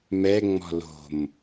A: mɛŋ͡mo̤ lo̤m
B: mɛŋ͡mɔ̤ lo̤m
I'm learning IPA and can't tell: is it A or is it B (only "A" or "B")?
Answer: B